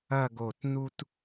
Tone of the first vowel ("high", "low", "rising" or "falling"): falling